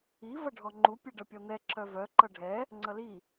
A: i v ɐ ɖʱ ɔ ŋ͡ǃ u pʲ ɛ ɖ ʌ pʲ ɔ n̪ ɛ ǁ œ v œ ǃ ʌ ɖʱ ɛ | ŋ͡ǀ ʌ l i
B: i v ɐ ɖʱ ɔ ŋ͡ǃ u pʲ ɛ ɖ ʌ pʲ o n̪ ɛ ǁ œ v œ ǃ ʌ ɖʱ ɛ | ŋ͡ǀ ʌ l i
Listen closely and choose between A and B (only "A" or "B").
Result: A